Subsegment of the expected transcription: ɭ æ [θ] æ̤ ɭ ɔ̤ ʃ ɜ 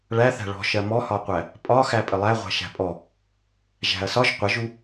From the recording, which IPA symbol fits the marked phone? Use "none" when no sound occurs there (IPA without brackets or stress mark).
θ